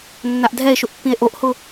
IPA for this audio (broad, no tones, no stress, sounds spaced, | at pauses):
nː a ʔ dʱ ɛ e̯ ʃ ʊ ʔ pː ĩ e̯ ʔ o ʔ h ʊ